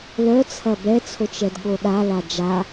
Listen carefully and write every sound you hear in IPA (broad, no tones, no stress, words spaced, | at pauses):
lœt͡sʰɐ bɛt͡sʰot͡ʃɛd ɠoɗala d͡ʒa